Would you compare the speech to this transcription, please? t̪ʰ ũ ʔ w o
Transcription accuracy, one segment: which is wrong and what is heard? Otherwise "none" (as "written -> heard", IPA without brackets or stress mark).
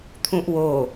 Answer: none